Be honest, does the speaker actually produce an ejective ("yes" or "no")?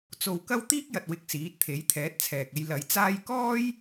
no